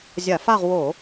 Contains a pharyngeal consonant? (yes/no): no